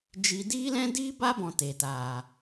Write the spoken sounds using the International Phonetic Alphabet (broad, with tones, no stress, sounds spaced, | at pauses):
d͡ʒ i˧ d iː˦ l ɛ̃˦ d iː˦ b a˦ b ɔ̃˨ t eː˨ t aː˨